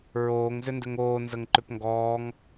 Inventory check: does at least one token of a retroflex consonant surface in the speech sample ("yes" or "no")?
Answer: no